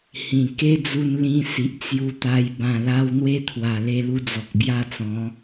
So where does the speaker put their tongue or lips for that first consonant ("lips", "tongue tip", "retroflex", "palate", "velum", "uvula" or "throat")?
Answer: throat